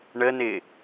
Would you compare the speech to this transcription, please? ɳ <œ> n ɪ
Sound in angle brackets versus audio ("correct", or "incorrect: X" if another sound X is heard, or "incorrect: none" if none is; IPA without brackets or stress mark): incorrect: ə